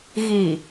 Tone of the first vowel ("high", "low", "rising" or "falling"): low